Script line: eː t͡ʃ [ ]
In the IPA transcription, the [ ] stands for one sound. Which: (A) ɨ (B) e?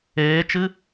A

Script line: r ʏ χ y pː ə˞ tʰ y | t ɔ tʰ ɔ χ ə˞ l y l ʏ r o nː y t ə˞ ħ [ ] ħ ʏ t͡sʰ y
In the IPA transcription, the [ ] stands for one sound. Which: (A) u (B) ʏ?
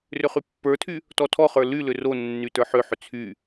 B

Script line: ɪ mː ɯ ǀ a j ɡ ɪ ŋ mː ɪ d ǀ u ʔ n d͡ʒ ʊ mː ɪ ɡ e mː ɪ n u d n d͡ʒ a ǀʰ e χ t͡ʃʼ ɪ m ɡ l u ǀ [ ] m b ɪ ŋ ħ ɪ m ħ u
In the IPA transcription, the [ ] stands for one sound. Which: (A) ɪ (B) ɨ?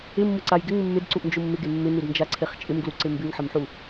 A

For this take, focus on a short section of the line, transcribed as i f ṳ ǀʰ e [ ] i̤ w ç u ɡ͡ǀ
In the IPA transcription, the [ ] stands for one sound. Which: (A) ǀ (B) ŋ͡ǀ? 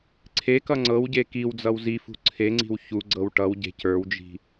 B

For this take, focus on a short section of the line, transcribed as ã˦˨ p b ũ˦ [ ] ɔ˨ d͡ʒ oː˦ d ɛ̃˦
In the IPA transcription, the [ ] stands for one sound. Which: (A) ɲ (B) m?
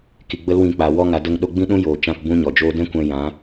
A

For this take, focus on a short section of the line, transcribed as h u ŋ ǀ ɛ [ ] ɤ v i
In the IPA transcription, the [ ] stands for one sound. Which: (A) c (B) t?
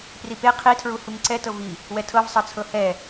B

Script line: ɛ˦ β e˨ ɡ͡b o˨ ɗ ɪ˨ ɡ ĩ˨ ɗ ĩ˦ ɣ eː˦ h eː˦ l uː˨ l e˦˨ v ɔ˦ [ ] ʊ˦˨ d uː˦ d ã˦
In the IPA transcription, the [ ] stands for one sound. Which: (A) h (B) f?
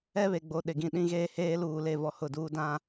A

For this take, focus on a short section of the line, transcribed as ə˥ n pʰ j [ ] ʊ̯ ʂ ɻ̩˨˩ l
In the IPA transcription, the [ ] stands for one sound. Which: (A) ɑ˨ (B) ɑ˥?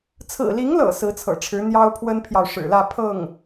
A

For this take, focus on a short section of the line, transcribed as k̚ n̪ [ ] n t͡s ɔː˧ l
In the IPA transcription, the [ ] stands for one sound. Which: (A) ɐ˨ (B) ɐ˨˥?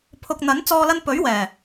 B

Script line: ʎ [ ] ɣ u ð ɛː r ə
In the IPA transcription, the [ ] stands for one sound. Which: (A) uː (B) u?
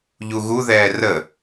B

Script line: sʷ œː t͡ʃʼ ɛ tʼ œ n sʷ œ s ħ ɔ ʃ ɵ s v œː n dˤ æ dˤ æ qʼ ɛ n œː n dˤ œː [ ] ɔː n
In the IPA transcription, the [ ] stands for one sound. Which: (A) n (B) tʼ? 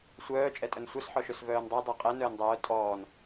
B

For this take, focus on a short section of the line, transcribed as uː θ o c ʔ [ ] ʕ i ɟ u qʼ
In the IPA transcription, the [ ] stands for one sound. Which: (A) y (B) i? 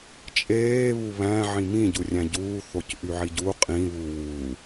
A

